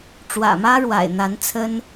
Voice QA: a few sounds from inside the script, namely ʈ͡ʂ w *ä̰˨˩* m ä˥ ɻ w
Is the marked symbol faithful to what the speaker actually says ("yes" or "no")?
yes